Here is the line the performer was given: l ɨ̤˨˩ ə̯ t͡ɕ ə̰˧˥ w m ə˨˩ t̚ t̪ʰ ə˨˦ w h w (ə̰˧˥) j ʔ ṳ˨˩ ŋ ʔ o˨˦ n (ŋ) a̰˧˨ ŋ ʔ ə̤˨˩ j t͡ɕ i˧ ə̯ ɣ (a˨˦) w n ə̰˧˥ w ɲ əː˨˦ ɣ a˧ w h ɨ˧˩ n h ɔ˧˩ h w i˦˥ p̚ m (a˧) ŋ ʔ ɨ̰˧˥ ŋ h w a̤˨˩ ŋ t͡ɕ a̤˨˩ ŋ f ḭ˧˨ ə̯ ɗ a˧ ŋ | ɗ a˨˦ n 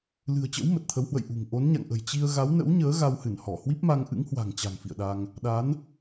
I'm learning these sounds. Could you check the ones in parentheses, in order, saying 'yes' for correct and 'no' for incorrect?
no, no, yes, yes

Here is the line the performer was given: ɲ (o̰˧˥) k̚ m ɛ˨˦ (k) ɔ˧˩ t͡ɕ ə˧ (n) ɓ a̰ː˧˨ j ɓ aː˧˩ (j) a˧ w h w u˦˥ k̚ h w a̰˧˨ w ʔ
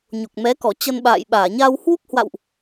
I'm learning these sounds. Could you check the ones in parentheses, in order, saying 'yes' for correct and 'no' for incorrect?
no, yes, yes, no

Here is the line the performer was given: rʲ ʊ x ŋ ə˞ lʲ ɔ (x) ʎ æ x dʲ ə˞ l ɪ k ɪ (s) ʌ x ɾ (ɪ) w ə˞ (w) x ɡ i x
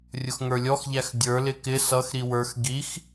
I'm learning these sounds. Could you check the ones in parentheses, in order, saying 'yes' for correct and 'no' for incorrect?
yes, yes, no, no

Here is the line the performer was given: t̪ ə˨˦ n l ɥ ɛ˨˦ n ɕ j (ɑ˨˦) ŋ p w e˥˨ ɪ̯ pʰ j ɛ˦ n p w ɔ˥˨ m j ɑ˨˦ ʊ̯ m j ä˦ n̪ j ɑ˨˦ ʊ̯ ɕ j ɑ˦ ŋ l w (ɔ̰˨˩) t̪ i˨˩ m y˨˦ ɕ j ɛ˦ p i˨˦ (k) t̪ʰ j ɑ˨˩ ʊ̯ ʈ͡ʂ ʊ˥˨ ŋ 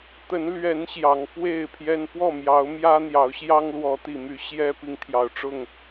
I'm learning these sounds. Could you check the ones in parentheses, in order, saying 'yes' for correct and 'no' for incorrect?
yes, no, no

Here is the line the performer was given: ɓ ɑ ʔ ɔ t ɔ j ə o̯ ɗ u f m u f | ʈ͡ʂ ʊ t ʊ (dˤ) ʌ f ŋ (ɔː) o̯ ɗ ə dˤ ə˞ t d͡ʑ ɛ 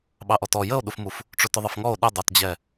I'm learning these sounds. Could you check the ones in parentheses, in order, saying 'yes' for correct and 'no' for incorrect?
no, no

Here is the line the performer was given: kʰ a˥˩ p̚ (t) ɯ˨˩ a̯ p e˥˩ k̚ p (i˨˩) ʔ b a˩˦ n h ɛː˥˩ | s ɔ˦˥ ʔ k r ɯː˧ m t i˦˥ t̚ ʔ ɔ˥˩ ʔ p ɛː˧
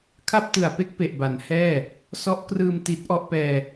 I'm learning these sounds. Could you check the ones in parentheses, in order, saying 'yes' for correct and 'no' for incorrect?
yes, no

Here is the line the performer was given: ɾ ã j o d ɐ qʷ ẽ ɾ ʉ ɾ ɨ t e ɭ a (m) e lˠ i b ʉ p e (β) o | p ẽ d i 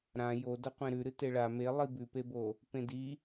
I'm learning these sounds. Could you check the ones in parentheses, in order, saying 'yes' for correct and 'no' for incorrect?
yes, no

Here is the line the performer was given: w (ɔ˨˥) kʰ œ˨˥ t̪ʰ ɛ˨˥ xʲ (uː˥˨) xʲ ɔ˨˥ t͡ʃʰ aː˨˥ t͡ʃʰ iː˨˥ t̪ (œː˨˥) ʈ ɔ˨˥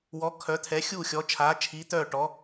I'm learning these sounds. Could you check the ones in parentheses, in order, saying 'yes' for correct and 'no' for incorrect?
yes, yes, no

